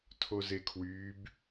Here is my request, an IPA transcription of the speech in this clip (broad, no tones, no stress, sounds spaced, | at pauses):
tʰ o z e kʰ w yː b